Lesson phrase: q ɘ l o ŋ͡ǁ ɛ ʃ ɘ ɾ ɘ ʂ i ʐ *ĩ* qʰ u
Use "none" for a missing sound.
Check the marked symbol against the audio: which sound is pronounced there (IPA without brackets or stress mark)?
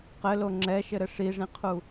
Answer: ĩ